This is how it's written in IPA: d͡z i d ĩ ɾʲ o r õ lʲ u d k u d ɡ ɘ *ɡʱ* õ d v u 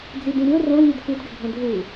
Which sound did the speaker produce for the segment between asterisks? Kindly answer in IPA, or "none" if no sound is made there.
ɡʱ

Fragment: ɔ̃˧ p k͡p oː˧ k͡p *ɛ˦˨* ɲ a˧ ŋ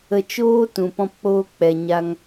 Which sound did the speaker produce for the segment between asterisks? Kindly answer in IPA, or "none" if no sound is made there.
ɛ˨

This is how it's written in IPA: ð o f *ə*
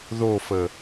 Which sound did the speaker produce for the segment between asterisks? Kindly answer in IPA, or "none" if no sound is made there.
ə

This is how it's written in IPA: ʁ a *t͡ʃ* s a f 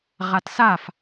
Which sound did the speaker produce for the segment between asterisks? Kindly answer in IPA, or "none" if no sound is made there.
t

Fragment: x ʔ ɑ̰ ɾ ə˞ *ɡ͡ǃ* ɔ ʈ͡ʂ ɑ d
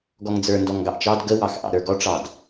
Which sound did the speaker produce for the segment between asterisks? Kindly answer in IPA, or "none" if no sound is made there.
ɡ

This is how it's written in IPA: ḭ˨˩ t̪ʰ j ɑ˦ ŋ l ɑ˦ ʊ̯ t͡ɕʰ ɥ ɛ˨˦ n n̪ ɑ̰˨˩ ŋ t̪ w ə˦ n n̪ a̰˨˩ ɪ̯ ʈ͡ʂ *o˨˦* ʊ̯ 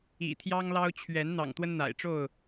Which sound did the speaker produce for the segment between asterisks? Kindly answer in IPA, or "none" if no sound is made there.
o˥˨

